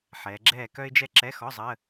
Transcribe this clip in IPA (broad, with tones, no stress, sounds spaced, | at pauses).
ħ ɛː˩˧ ɡ͡ǁ ɛː˥˨ k œ˥ ɪ̯ d͡ʒ ɛ˥ ǁ ɛ˧˥˧ x ɔ˧˥˧ zˤ əː˧˥˧